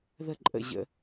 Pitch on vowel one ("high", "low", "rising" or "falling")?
falling